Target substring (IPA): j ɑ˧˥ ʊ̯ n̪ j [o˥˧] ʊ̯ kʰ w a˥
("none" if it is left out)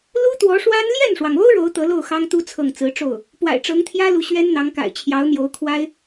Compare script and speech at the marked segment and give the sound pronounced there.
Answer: o˧˥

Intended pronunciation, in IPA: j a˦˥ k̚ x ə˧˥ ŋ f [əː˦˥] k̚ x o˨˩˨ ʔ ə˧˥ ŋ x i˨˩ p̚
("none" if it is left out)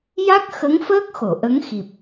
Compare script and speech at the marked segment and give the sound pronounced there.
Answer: əː˦˥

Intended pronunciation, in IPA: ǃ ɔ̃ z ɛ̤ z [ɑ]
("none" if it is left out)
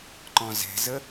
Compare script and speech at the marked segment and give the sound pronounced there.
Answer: ə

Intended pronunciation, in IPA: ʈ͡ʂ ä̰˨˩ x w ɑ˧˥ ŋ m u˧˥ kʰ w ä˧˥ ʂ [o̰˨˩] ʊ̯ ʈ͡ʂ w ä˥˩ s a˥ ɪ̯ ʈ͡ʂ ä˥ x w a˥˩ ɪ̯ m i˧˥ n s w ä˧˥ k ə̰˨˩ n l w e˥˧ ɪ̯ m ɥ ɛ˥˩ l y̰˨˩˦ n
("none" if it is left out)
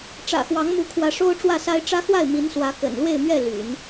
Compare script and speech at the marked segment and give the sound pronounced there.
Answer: o˥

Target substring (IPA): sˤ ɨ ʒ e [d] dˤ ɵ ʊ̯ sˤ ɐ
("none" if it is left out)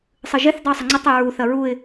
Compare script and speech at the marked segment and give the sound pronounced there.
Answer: θ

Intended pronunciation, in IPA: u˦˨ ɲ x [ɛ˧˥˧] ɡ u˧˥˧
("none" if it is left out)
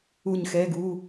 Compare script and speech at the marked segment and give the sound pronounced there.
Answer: ɛ˧˥˧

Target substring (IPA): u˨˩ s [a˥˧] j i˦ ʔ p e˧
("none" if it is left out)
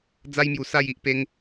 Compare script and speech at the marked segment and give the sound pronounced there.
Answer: a˥˧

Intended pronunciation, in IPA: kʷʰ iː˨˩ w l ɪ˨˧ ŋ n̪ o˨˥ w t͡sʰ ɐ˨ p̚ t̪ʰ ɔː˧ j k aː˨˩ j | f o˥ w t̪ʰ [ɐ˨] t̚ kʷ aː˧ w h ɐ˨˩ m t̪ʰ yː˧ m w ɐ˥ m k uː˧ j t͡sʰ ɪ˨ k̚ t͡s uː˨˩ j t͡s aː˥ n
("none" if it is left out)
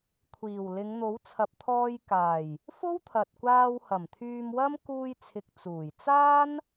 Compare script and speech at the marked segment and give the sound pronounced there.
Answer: ɐ˨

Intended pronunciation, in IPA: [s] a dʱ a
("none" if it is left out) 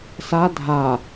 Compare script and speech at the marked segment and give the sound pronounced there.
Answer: s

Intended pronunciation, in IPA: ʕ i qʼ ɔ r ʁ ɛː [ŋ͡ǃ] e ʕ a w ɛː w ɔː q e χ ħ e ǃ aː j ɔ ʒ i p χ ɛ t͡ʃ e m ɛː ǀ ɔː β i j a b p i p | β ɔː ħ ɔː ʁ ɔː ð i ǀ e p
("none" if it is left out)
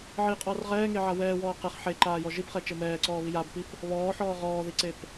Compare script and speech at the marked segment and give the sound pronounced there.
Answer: ŋ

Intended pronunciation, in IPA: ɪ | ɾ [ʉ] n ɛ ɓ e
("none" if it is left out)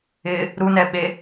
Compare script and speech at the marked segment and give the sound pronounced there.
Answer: u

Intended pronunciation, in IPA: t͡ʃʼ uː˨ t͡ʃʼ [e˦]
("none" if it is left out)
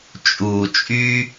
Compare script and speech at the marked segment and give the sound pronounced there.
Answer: y˦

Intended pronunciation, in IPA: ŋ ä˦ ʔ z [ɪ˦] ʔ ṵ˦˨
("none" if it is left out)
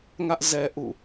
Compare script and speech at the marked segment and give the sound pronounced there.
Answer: ɛ˦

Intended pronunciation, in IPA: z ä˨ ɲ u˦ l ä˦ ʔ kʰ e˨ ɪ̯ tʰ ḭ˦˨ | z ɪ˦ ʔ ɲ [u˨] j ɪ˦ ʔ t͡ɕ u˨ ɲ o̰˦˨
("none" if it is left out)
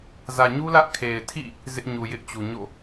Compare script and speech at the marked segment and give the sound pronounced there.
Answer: u˨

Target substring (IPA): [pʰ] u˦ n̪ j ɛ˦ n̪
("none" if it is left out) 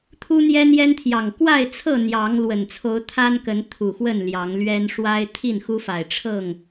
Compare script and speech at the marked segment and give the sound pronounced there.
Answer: t̪ʰ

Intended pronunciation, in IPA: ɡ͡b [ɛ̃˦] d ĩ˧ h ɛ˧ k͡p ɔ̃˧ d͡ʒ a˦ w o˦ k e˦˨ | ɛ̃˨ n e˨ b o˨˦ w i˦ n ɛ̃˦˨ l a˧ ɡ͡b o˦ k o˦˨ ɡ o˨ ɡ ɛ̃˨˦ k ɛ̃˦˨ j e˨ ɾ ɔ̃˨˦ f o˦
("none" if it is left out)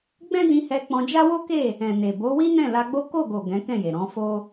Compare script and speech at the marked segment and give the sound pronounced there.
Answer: ɛ̃˦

